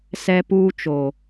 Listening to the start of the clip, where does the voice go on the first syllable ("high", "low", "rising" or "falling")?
high